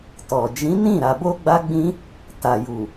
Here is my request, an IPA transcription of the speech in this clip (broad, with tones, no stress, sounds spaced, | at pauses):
t ɔ˨ d͡ʒ ĩ˨˦ n ĩ˦˨ ɾ a˨ b o˧ ɡ͡b a˦ ɡ͡b ĩ˦ | t a˨ j u˨